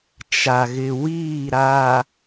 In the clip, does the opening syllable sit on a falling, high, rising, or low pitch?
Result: low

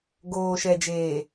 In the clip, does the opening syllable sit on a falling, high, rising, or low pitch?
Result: low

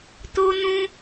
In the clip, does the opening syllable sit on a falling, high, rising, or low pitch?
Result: high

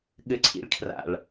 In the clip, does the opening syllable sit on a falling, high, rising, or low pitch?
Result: low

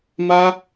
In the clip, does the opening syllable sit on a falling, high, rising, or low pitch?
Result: high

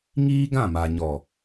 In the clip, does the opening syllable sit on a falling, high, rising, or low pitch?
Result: high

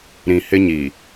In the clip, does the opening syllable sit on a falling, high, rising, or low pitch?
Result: low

